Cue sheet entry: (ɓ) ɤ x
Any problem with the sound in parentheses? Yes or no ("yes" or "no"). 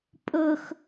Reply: yes